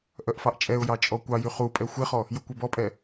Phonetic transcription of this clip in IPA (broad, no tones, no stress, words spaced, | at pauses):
ʔœʔfɑʔt͡ʃʼɛʊ̯jɑ t͡ʃʼɔkʷɑjy χupʼɛ xʷeχɔ | jukʷebɔpʼɛ